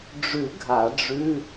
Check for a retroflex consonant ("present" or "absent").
present